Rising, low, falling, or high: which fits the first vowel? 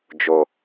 low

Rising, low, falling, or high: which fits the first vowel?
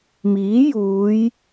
rising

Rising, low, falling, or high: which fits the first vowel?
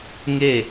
falling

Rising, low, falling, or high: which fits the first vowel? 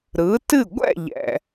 rising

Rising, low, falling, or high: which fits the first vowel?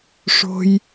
low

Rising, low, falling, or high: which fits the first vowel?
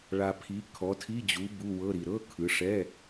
low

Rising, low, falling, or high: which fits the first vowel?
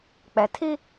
low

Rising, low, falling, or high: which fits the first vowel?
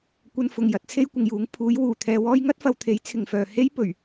low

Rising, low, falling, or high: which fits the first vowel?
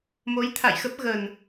rising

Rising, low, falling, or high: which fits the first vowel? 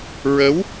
rising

